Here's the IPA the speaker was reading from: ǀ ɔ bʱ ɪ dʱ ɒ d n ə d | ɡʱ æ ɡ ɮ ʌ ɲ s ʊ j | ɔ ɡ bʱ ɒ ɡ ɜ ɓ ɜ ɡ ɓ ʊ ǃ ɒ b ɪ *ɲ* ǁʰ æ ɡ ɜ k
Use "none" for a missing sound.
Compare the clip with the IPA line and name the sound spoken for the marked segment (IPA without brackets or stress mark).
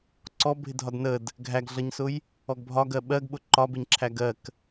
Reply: ɲ